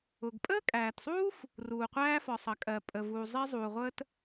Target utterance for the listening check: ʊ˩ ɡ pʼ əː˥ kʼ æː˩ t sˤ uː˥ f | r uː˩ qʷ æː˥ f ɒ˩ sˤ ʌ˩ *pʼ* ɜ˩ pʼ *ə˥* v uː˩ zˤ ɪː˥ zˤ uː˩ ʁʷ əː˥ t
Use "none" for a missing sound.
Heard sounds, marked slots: kʼ, ə˩

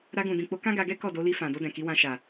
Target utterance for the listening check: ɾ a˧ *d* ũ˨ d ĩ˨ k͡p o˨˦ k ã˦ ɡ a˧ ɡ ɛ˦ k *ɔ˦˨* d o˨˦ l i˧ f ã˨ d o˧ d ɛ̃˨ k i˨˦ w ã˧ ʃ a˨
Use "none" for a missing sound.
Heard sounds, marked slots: ɡ, ɔ˦˨

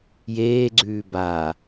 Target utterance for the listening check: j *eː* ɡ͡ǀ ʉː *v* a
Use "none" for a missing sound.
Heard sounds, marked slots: eː, b

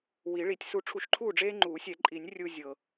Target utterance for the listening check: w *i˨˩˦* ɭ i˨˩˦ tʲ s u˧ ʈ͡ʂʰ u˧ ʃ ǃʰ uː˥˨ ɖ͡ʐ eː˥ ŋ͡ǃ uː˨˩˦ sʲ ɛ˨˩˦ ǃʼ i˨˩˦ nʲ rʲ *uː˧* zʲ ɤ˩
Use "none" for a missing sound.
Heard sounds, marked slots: i˨˩˦, u˧

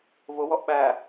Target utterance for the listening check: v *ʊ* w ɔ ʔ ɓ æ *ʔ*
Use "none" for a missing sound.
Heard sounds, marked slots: ʊ, none

